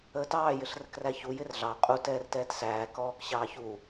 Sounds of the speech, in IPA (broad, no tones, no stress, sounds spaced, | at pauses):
əː t ɑː j ɪ ɬ r ə k r æ ç u j ɪ r ɮ ɑ qʼ u t ɛː r t ɛː t s æː k ɔː k ɕ ɑː ç u